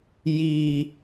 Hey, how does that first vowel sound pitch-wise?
low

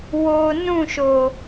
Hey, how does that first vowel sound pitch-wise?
low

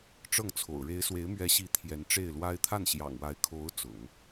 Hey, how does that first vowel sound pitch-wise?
falling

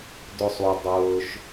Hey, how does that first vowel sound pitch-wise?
falling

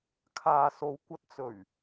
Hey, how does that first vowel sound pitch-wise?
low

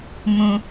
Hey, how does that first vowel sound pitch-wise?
low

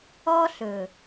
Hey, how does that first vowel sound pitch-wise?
high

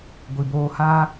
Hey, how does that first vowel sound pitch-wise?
low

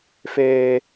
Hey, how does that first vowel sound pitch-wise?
high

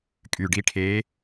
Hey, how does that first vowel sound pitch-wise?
low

